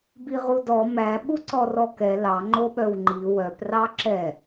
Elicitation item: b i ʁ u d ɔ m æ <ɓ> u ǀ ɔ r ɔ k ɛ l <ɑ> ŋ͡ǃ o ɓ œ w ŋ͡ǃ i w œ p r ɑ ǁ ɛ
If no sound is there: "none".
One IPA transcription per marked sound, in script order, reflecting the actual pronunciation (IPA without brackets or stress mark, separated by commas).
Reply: ɓ, ɑ